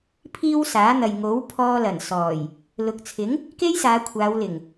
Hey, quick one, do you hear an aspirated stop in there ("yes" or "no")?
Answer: yes